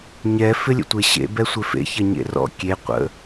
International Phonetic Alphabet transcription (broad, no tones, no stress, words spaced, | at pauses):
ɲɛ fɪlʲə̰tʷeɕḛ bɛsʷɪfḛ çɐɲḛrɔ̰ kʲe qʷə̰